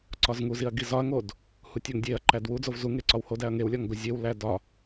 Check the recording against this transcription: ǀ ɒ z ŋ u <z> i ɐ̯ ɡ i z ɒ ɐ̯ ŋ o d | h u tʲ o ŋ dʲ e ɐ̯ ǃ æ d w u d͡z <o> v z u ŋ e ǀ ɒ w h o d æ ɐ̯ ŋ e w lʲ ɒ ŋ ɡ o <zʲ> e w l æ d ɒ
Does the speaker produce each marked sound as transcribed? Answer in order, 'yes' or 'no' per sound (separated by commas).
yes, yes, yes